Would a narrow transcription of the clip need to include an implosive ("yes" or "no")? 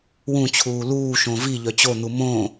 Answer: no